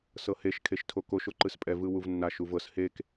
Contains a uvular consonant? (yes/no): no